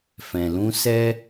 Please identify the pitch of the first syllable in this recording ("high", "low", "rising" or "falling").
low